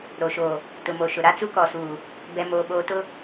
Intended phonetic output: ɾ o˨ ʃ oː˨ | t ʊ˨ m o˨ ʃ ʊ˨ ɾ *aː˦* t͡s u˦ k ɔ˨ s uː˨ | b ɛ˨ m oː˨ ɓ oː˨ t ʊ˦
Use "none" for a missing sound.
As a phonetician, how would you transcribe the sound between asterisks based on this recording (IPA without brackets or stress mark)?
a˦